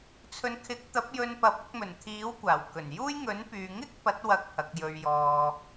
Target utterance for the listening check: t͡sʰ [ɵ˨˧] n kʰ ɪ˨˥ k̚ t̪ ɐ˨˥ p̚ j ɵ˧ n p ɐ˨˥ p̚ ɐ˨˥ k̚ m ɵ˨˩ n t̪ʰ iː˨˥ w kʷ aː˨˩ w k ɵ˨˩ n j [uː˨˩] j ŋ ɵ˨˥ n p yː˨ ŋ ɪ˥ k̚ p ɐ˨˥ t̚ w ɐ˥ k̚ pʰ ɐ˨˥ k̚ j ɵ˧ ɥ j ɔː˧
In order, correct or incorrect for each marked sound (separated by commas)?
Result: correct, incorrect